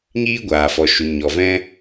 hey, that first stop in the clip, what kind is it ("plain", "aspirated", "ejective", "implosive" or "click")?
plain